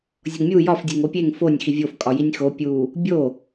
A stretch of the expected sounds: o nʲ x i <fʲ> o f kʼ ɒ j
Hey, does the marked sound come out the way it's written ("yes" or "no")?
no